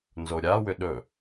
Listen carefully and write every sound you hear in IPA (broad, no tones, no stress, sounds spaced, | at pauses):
n z o ɾʲ a w ʏ ɗ ɵ